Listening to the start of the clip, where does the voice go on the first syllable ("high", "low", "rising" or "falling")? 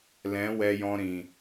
rising